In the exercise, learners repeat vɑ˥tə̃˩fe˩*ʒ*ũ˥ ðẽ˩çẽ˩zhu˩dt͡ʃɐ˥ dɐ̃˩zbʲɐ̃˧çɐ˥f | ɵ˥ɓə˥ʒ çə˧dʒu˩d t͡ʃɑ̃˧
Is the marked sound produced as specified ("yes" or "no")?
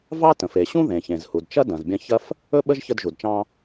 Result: no